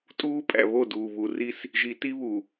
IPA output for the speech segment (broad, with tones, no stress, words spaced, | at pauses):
tʼuː˦pʼæ̰˨βo˦˨ duː˨βu˨ri˦s | ʒi˨ti˦βu˨